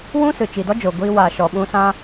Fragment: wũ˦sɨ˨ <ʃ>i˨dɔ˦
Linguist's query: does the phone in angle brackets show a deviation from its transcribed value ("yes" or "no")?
yes